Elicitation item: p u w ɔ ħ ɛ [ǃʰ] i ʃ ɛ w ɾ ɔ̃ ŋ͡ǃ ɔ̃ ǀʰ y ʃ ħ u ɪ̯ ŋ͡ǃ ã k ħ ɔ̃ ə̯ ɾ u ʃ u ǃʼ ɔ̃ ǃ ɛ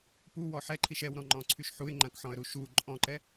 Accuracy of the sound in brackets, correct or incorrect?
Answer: correct